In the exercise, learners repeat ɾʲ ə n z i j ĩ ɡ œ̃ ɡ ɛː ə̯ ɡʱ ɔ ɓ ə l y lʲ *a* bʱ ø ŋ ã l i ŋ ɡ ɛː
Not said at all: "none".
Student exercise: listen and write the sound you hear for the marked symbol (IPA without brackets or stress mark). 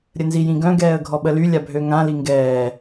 a